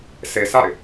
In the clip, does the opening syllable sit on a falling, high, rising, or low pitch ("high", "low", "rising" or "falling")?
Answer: low